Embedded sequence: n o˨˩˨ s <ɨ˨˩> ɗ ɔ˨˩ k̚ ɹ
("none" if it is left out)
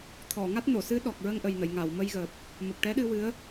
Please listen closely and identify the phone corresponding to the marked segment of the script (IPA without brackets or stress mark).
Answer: ɨ˧˥